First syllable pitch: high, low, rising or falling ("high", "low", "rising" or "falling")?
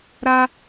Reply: high